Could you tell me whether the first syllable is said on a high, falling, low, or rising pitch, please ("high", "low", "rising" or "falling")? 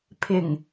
low